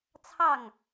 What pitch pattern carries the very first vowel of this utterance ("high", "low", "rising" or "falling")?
falling